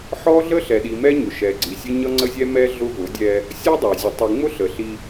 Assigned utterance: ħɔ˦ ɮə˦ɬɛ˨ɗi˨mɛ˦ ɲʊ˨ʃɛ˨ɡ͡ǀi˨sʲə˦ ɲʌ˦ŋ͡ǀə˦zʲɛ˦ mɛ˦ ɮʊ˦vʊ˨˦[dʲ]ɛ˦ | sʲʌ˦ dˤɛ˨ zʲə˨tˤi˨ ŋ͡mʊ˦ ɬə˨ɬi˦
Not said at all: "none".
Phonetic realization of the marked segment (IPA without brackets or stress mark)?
dʲ